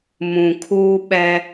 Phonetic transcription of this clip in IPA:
m ũ˨ kʰ uː˦ ɓ ɛ˦

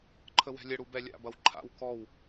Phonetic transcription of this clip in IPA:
ǃʰ ə w ɛ̤ lʲ ə ɽ u b ɛ lʲ a̰ b ɐ w ǃʰ a̰ w k ɔ w

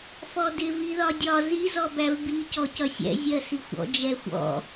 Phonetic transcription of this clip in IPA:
f ɔ d ɪ v i ð ɒ dʲ ɒ z i z ɔ b æ v b i c ɔ c ʌ sʲ ɛ̰ zʲ ɜ s i xʷ ɔ̰ d͡ʒ ɛ xʷ ɔ̰

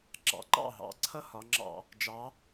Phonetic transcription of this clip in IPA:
ɡ͡ǁ ɑ̰˨˩ ǃ ɑ̰˥˩ ɦ ɑ̰˩˧ ǀʰ ʌ˦ h ɒ˩˧ ŋ͡ǁ ɑ̰˧˩˧ | d͡ʒ ɑ˨˥

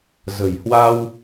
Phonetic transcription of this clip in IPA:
z ə̤˨˩ j h w a˧ w

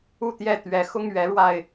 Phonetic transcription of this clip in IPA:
u˥˨ t̪ j ɛ˥˨ t̪ ɥ ɛ˨˦ x ʊ˦ ŋ ɥ ɛ˨˦ ɻ w a˧ ɪ̯

